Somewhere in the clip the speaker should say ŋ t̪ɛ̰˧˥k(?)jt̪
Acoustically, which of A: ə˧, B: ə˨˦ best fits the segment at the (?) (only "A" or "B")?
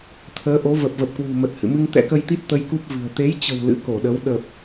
A